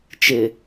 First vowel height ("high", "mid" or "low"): high